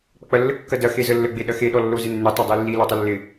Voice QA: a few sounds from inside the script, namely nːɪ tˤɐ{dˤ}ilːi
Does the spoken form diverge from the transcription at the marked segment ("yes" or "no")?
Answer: no